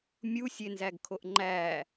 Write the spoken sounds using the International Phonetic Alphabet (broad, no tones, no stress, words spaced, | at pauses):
mʲusʲenzæɡkʰoʔ ŋ͡ǃæ